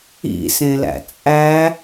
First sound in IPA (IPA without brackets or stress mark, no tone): ḭ